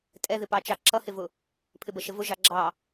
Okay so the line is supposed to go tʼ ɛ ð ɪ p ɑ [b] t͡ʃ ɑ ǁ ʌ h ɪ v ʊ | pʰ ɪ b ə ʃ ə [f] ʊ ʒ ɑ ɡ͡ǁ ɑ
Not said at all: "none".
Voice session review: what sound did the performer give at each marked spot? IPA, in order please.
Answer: none, v

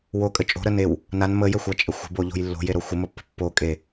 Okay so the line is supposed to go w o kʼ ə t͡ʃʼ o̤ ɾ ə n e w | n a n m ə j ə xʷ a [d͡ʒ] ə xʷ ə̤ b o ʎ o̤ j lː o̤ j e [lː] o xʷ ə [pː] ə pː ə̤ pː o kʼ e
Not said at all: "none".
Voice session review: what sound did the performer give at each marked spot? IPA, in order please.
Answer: t͡ʃʼ, ɾ, m

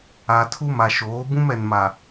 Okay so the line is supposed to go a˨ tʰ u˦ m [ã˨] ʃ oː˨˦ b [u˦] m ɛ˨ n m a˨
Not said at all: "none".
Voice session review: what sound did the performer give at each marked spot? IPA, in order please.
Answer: a˨, ũ˦

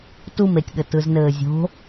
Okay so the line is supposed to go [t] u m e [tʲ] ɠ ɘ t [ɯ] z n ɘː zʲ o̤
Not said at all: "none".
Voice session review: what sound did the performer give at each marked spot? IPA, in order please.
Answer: t, tʲ, ɯ

